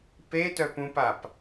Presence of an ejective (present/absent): absent